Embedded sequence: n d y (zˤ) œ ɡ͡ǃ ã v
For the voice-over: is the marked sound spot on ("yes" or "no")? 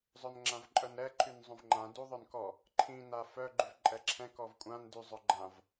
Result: yes